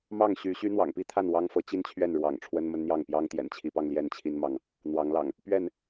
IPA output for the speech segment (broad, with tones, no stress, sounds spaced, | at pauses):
m ɑ˥˨ ŋ ɕ y˨˦ ɕ y˦ n̪ w ɑ̰˨˩ ŋ p i˦ t̪ʰ a˥˨ n w ɑ˦ ŋ f ɤ˨˦ t͡ɕ i˦ n t͡ɕʰ ɥ ɛ˥˨ n ɻ w ɑ̰˨˩ ŋ ʈ͡ʂʰ w ə˦ n m ə˦ n n̪ j ɑ˥˨ ŋ p j ɑ˦ ŋ t̪ j ɛ̰˨˩ n t͡ɕʰ i˨˦ p ɑ˧ ŋ l j ɛ˥˨ n t͡ɕʰ i˦ n m ɑ˨ ŋ | n̪ w ɑ˨˦ ŋ l ɑ̰˨˩ ŋ | p ɥ ɛ˥˨ n